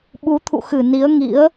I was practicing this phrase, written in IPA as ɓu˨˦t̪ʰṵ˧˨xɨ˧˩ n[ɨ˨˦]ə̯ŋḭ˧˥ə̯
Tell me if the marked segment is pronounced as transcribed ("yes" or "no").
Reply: no